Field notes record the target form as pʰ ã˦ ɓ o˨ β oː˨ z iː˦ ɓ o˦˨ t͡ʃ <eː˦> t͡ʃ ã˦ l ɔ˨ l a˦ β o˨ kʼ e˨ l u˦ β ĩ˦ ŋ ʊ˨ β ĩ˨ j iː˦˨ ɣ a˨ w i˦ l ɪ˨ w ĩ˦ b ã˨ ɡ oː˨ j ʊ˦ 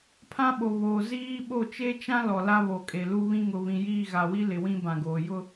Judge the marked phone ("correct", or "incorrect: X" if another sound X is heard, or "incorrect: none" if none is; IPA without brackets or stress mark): incorrect: e˦